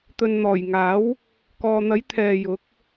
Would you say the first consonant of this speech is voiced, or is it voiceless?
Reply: voiceless